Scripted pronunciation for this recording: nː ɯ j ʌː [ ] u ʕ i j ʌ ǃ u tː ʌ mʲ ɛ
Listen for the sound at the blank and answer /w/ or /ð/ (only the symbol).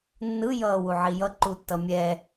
w